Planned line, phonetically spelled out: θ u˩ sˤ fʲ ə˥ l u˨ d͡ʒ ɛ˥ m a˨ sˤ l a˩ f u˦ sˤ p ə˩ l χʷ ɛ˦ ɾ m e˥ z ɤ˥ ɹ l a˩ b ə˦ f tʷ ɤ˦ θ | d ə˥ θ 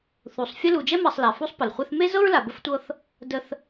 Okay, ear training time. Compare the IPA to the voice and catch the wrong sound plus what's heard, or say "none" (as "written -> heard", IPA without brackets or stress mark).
ɾ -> θ